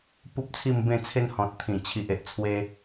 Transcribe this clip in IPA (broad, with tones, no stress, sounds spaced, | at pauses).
p u˦ p̚ t͡sʰ i˥˧ m b ẽ˥˧ t͡sʰ e˦ n h ɔ̃˨ t̚ t̪ʰ ĩ˨˩ t͡ɕʰ i˨ ʔ e˨ ʔ t͡sʰ w e˧